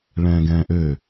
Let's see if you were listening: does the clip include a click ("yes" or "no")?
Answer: no